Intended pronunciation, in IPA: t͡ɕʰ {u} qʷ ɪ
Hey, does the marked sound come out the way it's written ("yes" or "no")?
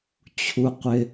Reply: yes